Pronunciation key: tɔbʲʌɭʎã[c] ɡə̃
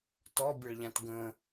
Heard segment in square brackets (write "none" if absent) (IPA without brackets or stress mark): t